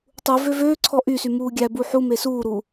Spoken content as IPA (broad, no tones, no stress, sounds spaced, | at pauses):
tˤ u v ø v øː ǀʰ ɔ ʔ y s y m uː ɡʲ æ b u ħ u m e s uː ɾ u